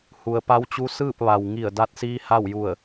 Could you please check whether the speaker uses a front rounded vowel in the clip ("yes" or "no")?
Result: no